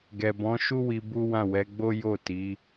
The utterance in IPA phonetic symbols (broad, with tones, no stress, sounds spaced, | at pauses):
ɡ ɛ˨ b ɔ̃˨˦ ʃ u˦ w i˧ b u˦ w ã˦˨ w ɛ˨˦ ɡ͡b o˦ j o˦˨ t i˨˦